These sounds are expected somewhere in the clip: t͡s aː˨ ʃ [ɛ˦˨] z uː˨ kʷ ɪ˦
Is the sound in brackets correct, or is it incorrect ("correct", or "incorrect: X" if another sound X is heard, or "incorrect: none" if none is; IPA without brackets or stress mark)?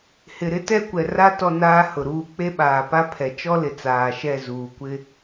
correct